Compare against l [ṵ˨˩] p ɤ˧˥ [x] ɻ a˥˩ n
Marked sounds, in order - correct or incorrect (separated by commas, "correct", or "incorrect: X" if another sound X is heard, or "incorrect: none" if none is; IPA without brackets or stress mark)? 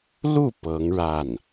incorrect: u˥˩, incorrect: ŋ